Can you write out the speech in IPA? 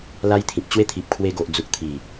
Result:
l a˦ j t̪ʰ ĩ˨ k̚ t͡ɕ w e˦ t̪ʰ i˨ p̚ kʰ w e˧ ɡ o˨ ʔ d͡z u˨ k̚ t̪ʰ i˨˩

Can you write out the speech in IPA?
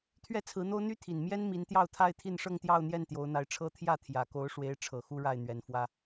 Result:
t̪ʰ ɥ ɛ˥˩ t͡sʰ ɹ̩˧˥ n̪ o˥ ʊ̯ n̪ y˥ t̪ʰ i˨˩ n m j ɛ˥ n m i˧˥ n t̪ j ɑ˥˧ ʊ̯ t̪ʰ a˥˧ ɪ̯ t̪ʰ i˥˧ n ʂ ɤ˥˧ ŋ t̪ j ɑ˥˧ ʊ̯ n̪ j ɛ˥˩ n t̪ j o˧˥ ʊ̯ n̪ a˧˥ ɪ̯ ʈ͡ʂʰ ɤ˥ t̪ʰ j ä˥˩ t̪ʰ j ä˨˩ k o˧˥ ʊ̯ ʂ w e˧˥ ɪ̯ ʈ͡ʂʰ ɤ˨˩ x u˥ ɻ a˥˩ ɪ̯ n̪ ɥ ɛ˨˩ n f w ä˥

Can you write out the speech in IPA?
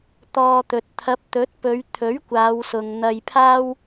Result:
t̪ ɔː˧ t̪ ɵ˨ t̚ t̪ʰ ɐ˨˥ p̚ t̪ ɵ˨˥ t̚ p ɵ˨˧ ɥ t̪ʰ ɵ˨˥ ɥ kʷ aː˨˧ w s ʊ˨ ŋ n̪ ɐ˧ j pʰ aː˥ w

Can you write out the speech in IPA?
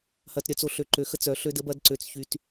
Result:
h ɐ˨ t ɾʲ œ˨ t͡s o˨ ɬ ø˨ ǃ ø˨ x ə˦ t͡s œ˨ ɬ ø˦ d ə˦ b ɐ˦ d ǀ ø˨ t͡s ç y˨ t

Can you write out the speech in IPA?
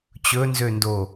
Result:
t͡ɕ ɵ n z ø n d o

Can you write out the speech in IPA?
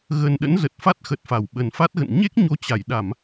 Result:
ɣ ə˨˩ n ɗ ə̰˧˥ n z ə˨˩ t̚ f a˦˥ t̚ x ə˨˩ t̚ f a˧˩ w ɓ ə˨˩ n f a˦˥ t̚ ɣ ə̰˧˨ n ɲ e˦˥ k̚ ɲ o˨˦ t͡ɕ a˧˩ j ɗ a˧˩˨ m

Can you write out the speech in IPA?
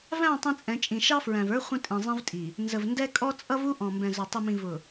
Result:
v æ̃˦˨ tˤ ĩ˦ t͡sʼ ɛ̃˨˦ t͡ʃʼ ĩ˨ ʃ ɑ˦ f ɹ æ̃˨ v ə˞˦ χʷ ə̃˦ tʼ ĩ˨ zˤ ĩ˦ v tʼ i˨ | n z ə˨ v n d ɛ˦ kʼ ɔ˦ t͡sʼ ʌ˦ v u˦ ʔ ɔ̃˨ m b ɛ̃˨ z ʊ˨ tˤ i˨ m ĩ˨ v ʊ˨

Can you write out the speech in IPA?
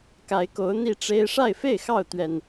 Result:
k a˨˦ ɪ̯ k o˨˦ ʊ̯ n̪ i˥˨ ʈ͡ʂ e˦ ɪ̯ ʂ a˥˨ ɪ̯ f e˥˨ ɪ̯ x ɑ˥˨ ʊ̯ t̪ ɥ ɛ˨˩ n

